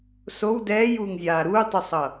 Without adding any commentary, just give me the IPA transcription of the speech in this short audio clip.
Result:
s o w d ɛː j uː ŋ zʲ aː ɾ uː tˤ u sˤ ʌ

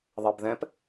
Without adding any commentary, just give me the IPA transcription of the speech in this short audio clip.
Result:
ðˤ ɛ b ð ɛ̃ p

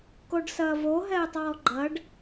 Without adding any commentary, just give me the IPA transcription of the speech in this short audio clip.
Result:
k o ɖ s ɐː v o ɦ ɛː tˤ ɔː ɡ͡ǃ ɐ ɖ

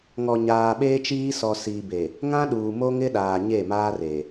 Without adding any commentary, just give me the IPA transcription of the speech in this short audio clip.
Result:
ŋ ɔ˨ ɲ aː˨ ɓ eː˦ t͡ʃ iː˦ s ɔ˨ s iː˨ b e˨ | ŋ ã˦ ɗ uː˨ m o˦ ŋ ɪ˦ ɗ aː˨ ɲ e˦˨ m aː˦ r e˨

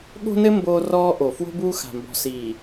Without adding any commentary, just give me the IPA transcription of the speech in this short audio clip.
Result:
ɠ o̤˦ n ɘ˦ m b oː˦ r ɔː˦ ʔ o˨ f w o̤˦ b uː˦ x a̤˨ m b ɔ̤˨ s iː˨

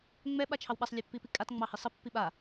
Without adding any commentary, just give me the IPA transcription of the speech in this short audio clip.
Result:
ŋ͡m ɛ ɓ a t͡ʃʰ ɑ w ɓ a sˤ lʲ ɛ pː i p i kʼ a t ŋ͡m ɑ h i sˤ ə pː i ɓ a

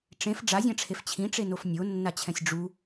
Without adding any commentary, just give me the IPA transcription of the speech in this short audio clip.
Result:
ʈ͡ʂ ẽ f ɖ͡ʐ a zʲ ã ʈ͡ʂʰ e f t͡ɕʰ ĩ ʈ͡ʂ e n o f nʲ o nː a t͡ɕʰ ɛ̃ sʲ ɖ͡ʐ u

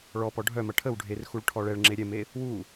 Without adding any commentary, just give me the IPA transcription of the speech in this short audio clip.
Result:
ɭ ɔ p ɔ ɖʱ œ m ɐ ʈʰ ə w ɖʱ e r x u ɭ ʈʰ ɔ ɭ ɛ ɭ ŋ͡ǁ e ɾʲ ɛ m e | w u

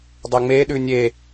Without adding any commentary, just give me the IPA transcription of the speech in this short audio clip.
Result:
dˤ e ŋ͡m e ɗ ʉ nʲ e

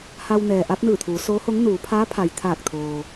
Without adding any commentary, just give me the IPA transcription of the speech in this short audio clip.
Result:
h a˧ w n ɛː˩ ʔ a˧˥ p̚ n ɯː˧˩ t̪ʰ uː˩˧ s oː˧˥ h o˧˥ ŋ n uː˩˧ pʰ aː˧˥ pʰ a˩ j t̪ʰ aː˧˩ k̚ t̪ʰ oː˩

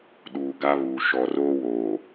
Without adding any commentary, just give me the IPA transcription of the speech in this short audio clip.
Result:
ɗ uː˨ ɡ a˦ β uː˨ ʃ ɔ˨ r oː˦ w oː˨

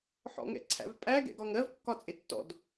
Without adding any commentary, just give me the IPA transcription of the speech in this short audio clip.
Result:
ħ ɔ̰ ŋ ɛ̰ ǀʰ æ̰ v pʼ æ ɡ ɛ̰ ɡ ɒ ŋ ɜ v kː ɒ t͡sʼ ɪ tː ɔ̰ d

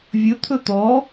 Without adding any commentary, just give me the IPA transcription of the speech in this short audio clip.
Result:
vʲ ɵ t̪ʰ ɵ t̪ ɔ

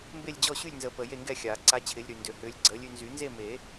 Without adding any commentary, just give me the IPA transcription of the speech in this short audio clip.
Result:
m b e˥˨ lʲ d͡ʑ ɔ˥˨ ɕ y˥˨ lʲ n z ə˨˩˦ p əː˨ j e˥˨ ŋ ɡ ɛ˥˨ xʲ aː˨˩˦ ǀ a˦ t͡ɕʰ ɪː˨˥ lʲ ɾ y˨ n d ø˨ h ʏː˨˥ lʲ ɡ͡ǀ əː˨˥ lʲ y˦ n z y˨˩˦ n z e˥˨ m e˨˩˦

